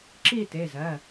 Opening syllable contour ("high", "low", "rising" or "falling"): falling